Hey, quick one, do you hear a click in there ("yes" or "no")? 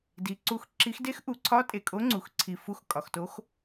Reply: yes